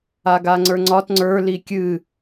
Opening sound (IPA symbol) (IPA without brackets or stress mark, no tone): a